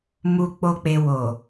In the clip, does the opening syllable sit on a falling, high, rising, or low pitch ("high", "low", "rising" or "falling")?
low